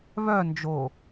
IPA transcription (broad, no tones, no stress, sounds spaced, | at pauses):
β œ n d͡ʒ o